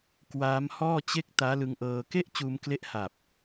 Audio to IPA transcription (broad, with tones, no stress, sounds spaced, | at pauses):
k w aː˦˥ m h ɔː˥˩ t͡ɕ e˥˩ k̚ t aː˦˥ l ɯ˧ ŋ ʔ ɤː˧ k e˥˩ ʔ t͡ɕ uː˧ m k l e˦˥ ʔ h a˨˩ p̚